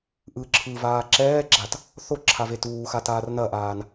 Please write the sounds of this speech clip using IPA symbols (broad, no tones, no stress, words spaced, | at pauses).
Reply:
ʔɯ ǁʰɯvaː ǁɛːɡ͡ǁat | θo ǁʰavetuːxa taːrnɐʔaːn